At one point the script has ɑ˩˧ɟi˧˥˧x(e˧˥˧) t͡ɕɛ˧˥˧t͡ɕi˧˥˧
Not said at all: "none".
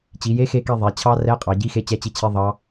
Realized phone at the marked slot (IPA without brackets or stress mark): e˧˥˧